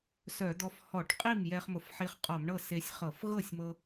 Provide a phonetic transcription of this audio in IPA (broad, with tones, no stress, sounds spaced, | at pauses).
s œ˧˩˧ d̪ ɔ˧ f h ɔ˧˩˧ ʈ qʼ i˥˩ m j ɛ˧ χ m ʊ˧˩˧ f ħ i˧ χ qʼ ɔ˧˩˧ m ɳ ɤ˥˩ s e˧ sʲ χ ɤ˧˩˧ f ɣ ɤ˥˩ sʲ m ɤ˧